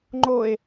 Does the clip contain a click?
yes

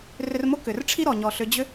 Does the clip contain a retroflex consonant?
yes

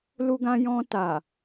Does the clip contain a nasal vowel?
yes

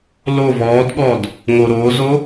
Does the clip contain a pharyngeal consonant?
no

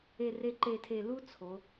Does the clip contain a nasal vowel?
no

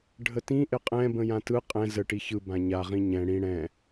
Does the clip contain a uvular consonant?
yes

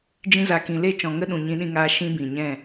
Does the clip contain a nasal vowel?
yes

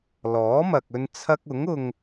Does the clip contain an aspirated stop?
yes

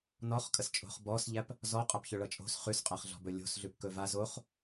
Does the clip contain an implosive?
no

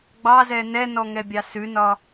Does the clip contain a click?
no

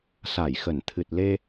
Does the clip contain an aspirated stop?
yes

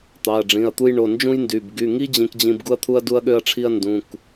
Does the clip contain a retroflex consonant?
yes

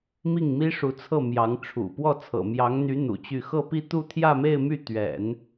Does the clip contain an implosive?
no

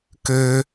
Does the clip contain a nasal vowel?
no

